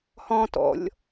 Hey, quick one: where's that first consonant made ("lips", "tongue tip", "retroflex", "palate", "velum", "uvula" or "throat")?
throat